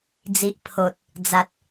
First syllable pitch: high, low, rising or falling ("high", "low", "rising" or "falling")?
low